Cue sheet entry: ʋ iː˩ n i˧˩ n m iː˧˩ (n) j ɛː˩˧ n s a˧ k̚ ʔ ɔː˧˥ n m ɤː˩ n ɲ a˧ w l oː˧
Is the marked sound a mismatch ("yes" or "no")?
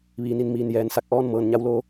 no